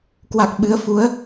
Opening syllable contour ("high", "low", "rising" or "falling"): low